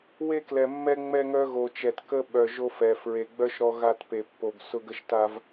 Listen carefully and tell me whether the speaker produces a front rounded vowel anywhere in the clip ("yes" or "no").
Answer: yes